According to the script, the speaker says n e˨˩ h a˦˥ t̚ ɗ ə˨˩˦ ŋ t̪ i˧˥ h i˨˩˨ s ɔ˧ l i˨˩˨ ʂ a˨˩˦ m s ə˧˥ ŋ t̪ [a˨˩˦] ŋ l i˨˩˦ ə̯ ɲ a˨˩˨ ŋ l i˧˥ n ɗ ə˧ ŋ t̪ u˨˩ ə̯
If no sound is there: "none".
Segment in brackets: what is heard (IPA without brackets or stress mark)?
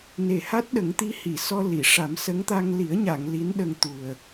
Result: a˧